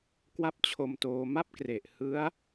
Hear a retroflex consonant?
no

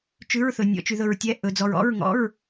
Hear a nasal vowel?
no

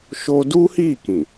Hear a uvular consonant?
no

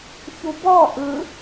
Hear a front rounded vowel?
no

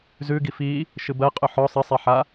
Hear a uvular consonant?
yes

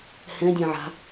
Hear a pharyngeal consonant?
yes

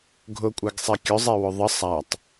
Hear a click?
no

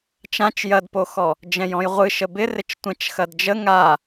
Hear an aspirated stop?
no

